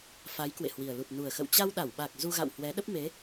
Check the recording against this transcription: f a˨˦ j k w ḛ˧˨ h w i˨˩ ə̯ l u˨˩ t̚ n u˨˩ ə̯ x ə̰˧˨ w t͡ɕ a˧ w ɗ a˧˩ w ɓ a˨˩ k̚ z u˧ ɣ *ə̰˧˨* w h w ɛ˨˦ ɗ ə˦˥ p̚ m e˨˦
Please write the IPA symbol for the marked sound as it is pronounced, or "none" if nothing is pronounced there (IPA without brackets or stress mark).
a̰˧˨